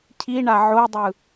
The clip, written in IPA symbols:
cʰ i ɳ a ʕ o dˤ ɯ

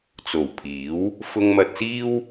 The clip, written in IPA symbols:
t͡s o˨˩ w pʰ iː˨˥ w | f ʊ˧ ŋ m ɐ˧ t̚ s iː˥ w

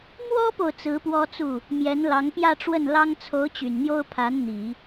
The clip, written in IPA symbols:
m w ɔ˥ p o˨ ʊ̯ t͡s ɹ̩˧˥ p w ɔ˥ t͡s u˥˩ | m j ɛ˧˥ n l ɑ˧˥ ŋ p j ä˥˧ ʈ͡ʂ w ə˥˩ n l ɑ˥ ŋ t͡sʰ o˧˥ ʊ̯ t͡ɕ y˨˩ n n̪ j o˥ ʊ̯ pʰ a˧˥ n n̪ i˨˩˦

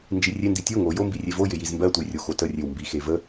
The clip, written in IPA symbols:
n d͡ʒ i rʲ e n d i tʲ o ŋ o j o m b i rʲ e v o j ɪ j i z m b ɜ tʷ ə j rʲ o x o t ə rʲ e w m b i x e v ə

